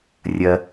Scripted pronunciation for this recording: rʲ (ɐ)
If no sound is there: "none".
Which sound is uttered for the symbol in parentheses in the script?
ɐ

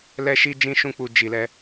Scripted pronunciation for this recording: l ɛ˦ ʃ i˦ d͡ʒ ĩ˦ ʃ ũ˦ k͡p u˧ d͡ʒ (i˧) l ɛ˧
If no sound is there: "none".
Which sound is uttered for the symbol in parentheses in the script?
i˨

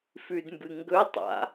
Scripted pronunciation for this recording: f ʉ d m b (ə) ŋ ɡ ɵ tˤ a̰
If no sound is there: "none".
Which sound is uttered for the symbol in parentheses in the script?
ɨ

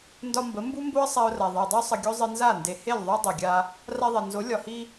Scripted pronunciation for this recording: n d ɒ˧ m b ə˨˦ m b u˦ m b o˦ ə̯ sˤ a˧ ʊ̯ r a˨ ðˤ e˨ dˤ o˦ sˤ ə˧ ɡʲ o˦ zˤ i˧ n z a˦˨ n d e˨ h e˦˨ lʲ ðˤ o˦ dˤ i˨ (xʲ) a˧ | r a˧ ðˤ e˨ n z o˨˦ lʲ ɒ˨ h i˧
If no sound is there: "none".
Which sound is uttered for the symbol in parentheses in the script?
ɡʲ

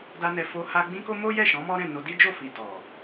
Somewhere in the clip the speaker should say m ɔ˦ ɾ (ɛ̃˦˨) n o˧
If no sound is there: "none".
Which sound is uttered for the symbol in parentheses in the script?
ɛ̃˦˨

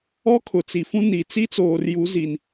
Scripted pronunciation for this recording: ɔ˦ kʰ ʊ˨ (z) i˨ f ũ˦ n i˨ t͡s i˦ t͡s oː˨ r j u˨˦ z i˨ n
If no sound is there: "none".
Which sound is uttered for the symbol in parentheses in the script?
t͡s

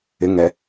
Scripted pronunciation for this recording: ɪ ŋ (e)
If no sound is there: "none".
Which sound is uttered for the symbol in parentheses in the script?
ɛ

